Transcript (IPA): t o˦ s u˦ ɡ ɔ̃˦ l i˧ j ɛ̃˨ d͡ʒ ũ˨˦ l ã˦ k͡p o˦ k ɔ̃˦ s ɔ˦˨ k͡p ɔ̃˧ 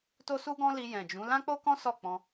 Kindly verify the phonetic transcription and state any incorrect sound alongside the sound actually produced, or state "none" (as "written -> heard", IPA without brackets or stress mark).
none